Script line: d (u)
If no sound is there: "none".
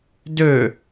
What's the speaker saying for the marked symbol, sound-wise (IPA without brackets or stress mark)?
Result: ø